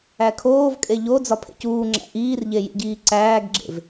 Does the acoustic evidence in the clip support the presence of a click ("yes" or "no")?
yes